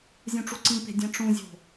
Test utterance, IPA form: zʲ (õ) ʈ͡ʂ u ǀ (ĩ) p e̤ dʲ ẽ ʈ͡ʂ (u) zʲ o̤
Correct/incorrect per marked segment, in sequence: incorrect, correct, incorrect

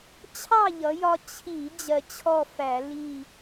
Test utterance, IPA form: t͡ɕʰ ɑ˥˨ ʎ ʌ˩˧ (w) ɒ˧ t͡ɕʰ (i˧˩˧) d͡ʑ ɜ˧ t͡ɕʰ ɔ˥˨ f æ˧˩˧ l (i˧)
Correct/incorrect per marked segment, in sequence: incorrect, correct, incorrect

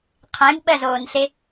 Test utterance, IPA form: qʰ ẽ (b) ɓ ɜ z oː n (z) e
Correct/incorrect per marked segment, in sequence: correct, incorrect

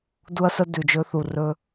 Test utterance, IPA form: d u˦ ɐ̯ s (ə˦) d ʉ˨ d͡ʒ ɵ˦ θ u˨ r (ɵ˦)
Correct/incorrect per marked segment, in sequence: correct, correct

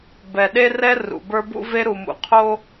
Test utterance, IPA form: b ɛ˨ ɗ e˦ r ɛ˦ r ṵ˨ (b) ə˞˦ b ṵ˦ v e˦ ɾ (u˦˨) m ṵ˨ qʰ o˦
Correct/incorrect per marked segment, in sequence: correct, incorrect

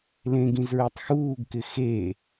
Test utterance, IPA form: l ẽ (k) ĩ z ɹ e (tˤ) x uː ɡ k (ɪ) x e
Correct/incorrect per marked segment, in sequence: incorrect, correct, correct

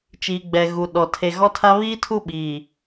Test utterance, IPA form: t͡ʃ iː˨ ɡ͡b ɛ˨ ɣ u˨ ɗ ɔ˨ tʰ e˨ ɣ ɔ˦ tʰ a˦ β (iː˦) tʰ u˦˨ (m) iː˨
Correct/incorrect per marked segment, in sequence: correct, incorrect

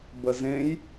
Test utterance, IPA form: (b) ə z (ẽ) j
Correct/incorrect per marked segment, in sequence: correct, correct

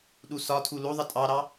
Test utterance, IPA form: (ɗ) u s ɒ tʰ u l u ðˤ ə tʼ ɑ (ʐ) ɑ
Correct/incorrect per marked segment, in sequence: correct, incorrect

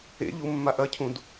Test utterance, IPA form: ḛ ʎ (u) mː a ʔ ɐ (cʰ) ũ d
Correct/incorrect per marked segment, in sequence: correct, correct

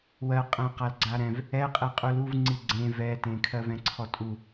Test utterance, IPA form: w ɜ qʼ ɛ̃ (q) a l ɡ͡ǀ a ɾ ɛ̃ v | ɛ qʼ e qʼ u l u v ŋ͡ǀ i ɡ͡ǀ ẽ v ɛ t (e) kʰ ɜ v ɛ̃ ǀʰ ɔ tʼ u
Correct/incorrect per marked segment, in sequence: correct, incorrect

